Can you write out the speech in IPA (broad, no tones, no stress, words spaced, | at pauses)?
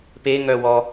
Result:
pe ŋœwɔ